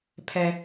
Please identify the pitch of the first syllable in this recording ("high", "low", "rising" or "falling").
low